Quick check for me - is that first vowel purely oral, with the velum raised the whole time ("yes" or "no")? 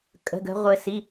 yes